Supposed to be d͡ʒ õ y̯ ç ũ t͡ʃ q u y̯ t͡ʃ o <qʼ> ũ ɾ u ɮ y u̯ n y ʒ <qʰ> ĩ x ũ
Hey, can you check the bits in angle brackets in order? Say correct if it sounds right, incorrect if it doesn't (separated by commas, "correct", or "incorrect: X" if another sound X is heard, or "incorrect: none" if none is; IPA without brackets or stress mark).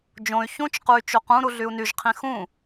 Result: incorrect: q, correct